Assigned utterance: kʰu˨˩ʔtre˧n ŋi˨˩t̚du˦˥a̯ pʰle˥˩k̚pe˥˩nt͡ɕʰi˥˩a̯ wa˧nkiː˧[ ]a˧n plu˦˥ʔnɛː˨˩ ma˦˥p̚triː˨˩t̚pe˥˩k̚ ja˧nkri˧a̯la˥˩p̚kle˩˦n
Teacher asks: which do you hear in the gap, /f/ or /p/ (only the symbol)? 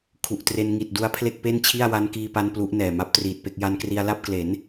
p